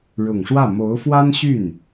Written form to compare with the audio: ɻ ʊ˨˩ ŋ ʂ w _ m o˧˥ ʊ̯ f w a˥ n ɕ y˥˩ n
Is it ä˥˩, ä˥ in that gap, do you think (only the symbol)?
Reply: ä˥˩